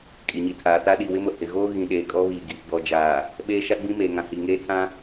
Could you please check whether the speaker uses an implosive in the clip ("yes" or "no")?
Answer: yes